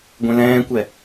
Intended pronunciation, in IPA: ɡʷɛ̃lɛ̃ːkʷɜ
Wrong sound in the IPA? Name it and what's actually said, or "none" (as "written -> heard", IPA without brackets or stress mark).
ɜ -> ɛ